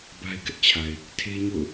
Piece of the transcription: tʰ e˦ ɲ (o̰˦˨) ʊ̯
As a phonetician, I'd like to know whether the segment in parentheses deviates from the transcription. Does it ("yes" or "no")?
no